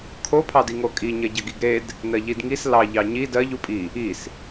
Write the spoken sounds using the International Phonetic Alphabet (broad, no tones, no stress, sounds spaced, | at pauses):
kʰ o pʰ ɑ d i ŋ o kʼ i ɲ ɜ ɟ ɐ ɡ i ɡ ɾ e d | n ɜ ʎ i d ŋ i s l ɑ ʎ ɑ ɲ i d ɜ ʎ u pʼ i | i s